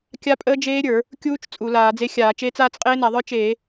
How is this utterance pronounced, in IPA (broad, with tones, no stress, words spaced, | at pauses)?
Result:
kʲa˦˥pʼəː˦˥ d͡ʒeː˦˥ɾʲə˞˧˩˧ | kʲuː˦˥t͡ʃ t͡sʼu˧˩˧laː˧˩˧d͡ze˦˥xʲaː˧˩˧ t͡ʃeː˦˥t͡saː˦˥t͡s qʼeː˦˥na˧˩˧ðˤə˞˦˥ t͡ʃeː˧˩˧